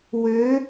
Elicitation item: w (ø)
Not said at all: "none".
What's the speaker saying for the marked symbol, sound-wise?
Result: ø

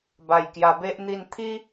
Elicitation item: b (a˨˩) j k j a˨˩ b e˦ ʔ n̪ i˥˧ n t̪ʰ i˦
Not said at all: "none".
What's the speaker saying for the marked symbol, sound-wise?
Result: a˨˩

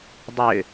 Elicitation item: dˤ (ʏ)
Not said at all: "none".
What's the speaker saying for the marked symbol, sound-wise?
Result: ʏ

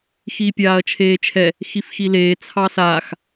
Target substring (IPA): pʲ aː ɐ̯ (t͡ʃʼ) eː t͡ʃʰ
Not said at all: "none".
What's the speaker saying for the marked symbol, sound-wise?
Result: t͡ʃʰ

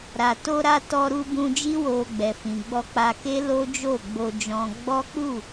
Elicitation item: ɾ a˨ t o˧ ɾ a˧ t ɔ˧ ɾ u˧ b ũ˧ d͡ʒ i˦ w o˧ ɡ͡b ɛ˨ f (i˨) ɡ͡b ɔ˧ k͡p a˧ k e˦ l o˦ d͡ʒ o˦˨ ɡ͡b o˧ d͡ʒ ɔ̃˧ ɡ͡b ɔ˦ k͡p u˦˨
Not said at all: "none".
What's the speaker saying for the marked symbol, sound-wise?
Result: ĩ˨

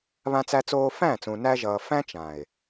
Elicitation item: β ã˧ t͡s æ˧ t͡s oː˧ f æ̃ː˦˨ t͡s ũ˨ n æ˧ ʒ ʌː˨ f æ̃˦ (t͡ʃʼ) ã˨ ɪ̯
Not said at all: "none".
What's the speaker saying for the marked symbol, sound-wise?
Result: t͡ʃ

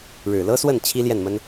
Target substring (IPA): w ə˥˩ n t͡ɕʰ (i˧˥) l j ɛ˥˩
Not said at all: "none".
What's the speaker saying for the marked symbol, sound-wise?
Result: i˥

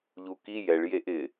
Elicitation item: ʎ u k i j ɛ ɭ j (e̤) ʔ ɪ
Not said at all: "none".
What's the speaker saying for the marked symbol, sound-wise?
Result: e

